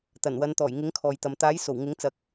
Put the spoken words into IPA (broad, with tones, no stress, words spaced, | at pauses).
t̪ɐ˨˩nwɐ˨˧n t̪ɔː˨˩jŋɪ˨˥ŋ kʰɔː˨jt̪ɐ˨m t̪aː˨˥jso˨˩w ŋɪ˨˥ŋt͡sɐ˨˥k̚